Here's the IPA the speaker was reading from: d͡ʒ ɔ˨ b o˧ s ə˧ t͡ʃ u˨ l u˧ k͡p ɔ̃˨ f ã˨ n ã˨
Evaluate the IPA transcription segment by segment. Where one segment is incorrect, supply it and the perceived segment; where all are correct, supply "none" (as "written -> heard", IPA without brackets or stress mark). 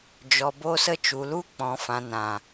none